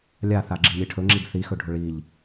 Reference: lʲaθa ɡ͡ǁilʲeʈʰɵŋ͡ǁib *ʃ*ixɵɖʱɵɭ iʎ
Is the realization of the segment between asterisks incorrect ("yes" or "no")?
yes